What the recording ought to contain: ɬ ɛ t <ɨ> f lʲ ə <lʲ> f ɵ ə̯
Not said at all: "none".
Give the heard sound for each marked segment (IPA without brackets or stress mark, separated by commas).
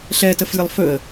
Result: ə, lˠ